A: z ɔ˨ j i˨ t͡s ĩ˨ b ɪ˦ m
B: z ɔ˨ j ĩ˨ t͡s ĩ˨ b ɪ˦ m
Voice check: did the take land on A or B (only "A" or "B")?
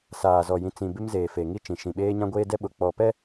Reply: B